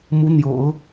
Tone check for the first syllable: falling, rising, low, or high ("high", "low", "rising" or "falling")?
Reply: rising